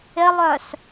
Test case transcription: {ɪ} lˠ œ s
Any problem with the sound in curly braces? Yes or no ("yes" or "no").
no